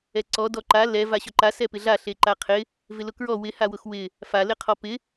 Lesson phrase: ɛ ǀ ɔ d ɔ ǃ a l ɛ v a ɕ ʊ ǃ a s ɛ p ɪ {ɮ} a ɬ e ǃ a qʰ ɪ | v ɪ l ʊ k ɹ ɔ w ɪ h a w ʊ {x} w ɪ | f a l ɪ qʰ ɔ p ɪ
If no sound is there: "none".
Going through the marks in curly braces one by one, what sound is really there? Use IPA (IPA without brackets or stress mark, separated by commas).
ɮ, x